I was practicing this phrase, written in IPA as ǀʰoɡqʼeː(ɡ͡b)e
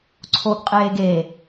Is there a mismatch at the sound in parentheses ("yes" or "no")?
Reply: yes